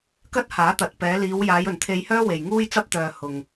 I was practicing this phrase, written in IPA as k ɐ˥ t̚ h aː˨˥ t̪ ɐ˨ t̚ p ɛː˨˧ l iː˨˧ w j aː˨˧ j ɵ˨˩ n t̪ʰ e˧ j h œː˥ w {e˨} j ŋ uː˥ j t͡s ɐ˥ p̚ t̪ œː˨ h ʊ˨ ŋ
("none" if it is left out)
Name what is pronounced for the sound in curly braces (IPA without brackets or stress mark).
e˨